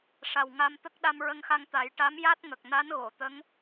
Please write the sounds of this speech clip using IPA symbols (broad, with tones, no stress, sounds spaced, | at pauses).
ʂ a˨˩ w ŋ a˧ m t̪ ə˦˥ k̚ ɗ a˧ m ɹ ə˧ ŋ x a˧ ŋ t̪ a˨˩˦ j ʈ a˧˥ m j a˦˥ t̚ ŋ ə˨˩ k̚ n a˧˥ n ɣ o˨˩˨ t̪ ə˧˥ ŋ